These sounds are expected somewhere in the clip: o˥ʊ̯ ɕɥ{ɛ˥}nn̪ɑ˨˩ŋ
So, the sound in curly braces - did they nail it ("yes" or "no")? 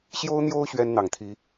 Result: yes